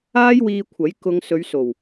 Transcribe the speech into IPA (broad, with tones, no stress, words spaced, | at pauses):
aː˥jwiː˧kʷʰɐ˨˥j kʊ˧ŋ sɵ˨˧ɥso˨˩w